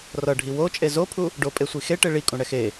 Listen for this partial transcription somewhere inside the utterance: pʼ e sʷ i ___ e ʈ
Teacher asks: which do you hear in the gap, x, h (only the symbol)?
x